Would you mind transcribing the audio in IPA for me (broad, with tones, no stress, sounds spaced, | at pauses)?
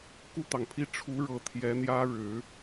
k u˥˩ t̪ ɑ˩ ŋ pʰ i˥ ʈ͡ʂʰ u˧˥ ɻ ɤ˨˩ t̪ʰ j ɛ˧˥ n̪ j ä˥ ɻ ɻ̩˨˩˦